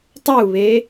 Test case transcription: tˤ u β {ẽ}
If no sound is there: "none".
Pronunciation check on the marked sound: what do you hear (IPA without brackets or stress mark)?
e